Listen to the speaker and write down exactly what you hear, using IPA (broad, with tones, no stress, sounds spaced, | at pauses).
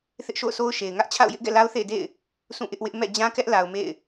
θ ɪ˦ ʔ ʃ o̰˦˨ ʊ̯ s o˦ ʊ̯ ʃ e˨ ɪ̯ ŋ ä˦ ʔ t͡ɕʰ a̰˦˨ ʊ̯ j ɪ˦ ʔ ɡ ɛ̰˦˨ l a˦ ʊ̯ θ ḛ˦˨ ɪ̯ d ḛ˦˨ ɪ̯ | sʰ ũ˦˨ ʔ ɪ˦ ʔ w ɪ˦ ʔ m ɛ̰˦˨ d͡ʑ ã˦ k ɛ˦ ʔ l a˨ ʊ̯ m ḛ˦˨ ɪ̯